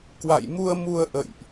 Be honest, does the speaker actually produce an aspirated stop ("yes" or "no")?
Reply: no